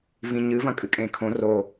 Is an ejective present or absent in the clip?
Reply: present